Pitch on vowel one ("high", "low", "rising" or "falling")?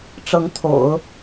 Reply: rising